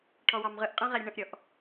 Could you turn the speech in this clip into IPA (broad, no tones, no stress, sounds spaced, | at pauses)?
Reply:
ʈʰ ɔ w ɑ m ʁ ɯ ʔ qʼ ɛ̃ ʁ ɛ ɾʲ ə̃ ɳ ə̃ ʔ ɾʲ ɔ ʔ